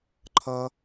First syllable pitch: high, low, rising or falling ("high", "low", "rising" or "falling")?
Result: high